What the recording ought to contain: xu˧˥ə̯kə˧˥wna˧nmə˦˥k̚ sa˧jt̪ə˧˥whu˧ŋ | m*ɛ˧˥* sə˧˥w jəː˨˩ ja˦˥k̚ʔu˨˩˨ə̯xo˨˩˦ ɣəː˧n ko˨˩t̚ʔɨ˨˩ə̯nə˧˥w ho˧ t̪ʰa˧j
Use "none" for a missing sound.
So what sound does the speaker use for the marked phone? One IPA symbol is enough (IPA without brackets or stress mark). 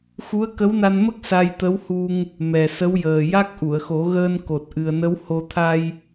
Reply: ɛ˨˩